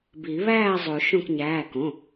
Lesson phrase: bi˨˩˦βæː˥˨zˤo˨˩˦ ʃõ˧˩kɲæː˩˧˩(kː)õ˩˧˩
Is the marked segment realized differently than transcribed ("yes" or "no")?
yes